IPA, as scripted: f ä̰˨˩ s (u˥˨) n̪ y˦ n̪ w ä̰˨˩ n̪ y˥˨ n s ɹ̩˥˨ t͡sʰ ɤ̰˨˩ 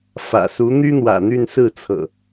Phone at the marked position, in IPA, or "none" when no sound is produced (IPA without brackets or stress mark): u˨˦